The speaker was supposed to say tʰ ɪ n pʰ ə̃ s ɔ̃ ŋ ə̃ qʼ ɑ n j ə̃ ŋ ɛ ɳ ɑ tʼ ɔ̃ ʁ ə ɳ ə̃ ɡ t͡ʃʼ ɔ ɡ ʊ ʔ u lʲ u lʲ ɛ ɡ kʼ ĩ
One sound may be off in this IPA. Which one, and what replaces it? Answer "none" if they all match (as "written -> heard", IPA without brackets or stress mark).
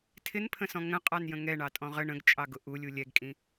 ɔ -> ɑ